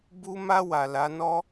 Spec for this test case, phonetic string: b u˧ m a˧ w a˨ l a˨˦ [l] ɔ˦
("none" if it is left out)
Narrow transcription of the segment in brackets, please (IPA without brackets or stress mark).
n